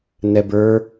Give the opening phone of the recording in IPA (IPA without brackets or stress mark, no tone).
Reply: n